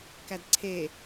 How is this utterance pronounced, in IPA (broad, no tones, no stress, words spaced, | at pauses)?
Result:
kædǀʰe